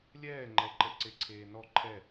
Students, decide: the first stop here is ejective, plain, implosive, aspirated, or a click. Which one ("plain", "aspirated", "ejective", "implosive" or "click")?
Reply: click